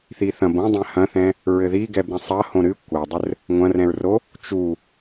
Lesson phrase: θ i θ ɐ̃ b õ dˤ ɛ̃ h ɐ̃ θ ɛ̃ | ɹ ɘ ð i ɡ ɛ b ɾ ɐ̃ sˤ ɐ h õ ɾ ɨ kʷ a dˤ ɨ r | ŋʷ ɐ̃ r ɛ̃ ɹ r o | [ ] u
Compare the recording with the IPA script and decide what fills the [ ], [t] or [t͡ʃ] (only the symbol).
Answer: t͡ʃ